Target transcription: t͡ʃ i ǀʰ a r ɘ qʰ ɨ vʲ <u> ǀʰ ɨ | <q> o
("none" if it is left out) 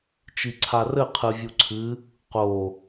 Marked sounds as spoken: u, q

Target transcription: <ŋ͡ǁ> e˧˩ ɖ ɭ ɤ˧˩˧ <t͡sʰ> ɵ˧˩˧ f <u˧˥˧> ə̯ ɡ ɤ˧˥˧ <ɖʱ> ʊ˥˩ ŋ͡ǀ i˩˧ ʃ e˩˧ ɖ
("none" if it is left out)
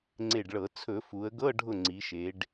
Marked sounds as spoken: ŋ͡ǀ, t͡sʰ, u˩˧, ɖʱ

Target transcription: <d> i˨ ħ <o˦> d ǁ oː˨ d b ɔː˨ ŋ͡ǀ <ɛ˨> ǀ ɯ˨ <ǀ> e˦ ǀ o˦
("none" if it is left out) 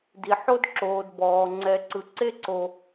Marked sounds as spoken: d, o˦, ɛ˨, ǀ

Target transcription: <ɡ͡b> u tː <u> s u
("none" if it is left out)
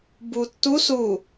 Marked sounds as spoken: b, u

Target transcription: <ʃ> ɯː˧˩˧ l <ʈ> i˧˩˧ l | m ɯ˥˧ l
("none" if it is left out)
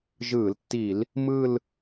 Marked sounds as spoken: ʒ, tː

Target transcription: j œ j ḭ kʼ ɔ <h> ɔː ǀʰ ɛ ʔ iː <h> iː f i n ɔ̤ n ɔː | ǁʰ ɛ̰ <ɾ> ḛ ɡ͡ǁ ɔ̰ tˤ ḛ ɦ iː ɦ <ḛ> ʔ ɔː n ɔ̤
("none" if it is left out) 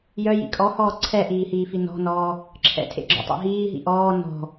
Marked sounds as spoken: h, h, tʰ, ḭ

